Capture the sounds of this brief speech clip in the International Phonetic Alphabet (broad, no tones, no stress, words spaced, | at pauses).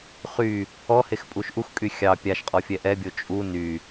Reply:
χy | ɔhexpʼuʃ ʔuxkʼy xʲɑ pʲaʃqʼɔfʲɛ ʔɛbʲo t͡ʃʼu ny